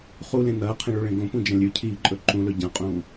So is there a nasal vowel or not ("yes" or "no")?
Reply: yes